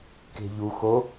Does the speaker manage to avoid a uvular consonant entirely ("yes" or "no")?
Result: yes